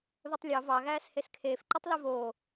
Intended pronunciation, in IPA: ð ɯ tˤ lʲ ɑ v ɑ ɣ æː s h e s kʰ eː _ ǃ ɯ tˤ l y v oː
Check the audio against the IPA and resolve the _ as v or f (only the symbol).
f